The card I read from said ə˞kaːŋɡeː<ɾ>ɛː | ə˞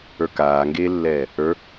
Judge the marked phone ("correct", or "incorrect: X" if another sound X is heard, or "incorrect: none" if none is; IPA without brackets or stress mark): incorrect: lː